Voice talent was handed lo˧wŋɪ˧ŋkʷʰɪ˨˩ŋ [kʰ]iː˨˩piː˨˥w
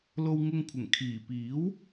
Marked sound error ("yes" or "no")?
no